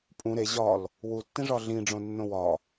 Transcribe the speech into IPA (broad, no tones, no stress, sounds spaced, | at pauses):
pʼ ũ ɾ e ʑ ɒ l | w u tː ĩ ʐ ɒ ɮ ĩ ɖ͡ʐ õ nː õ w ɒ